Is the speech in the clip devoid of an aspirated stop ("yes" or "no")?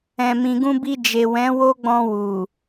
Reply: yes